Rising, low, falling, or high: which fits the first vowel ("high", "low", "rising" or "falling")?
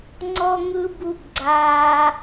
high